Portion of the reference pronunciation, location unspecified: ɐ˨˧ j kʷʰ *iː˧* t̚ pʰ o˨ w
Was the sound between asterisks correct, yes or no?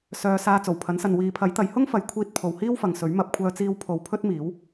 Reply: yes